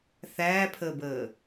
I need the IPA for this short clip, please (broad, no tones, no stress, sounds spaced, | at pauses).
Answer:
θ æː pʰ əː b əː